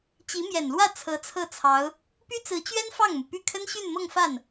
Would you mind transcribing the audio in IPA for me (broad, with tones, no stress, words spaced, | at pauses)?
t͡ɕi˧˥mjɛ˨˩nlwä˥˩ t͡sʰɤ˧˥t͡sʰɤ˥˩t͡sʰɑ˧˥ʊ̯ | py˥t͡sɹ̩˧˥t͡ɕɥɛ˥n fɑ˥˩ŋmu˩py˥˩ kʰə˥nɕy˥˧nmɤ˥˧ŋfa˥˩n